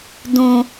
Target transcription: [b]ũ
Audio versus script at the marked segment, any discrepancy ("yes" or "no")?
yes